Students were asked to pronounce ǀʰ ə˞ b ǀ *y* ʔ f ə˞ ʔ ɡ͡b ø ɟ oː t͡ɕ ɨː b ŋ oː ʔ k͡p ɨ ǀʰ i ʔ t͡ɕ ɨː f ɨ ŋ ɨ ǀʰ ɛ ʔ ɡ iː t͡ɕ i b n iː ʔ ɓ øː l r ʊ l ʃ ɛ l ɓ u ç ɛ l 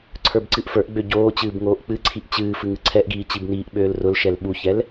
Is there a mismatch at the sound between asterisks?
yes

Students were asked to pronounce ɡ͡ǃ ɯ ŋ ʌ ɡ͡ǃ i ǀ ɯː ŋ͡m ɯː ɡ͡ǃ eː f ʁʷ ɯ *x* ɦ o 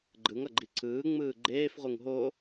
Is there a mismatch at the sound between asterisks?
yes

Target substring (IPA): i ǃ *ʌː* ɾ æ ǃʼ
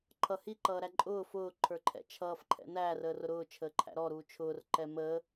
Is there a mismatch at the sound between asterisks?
no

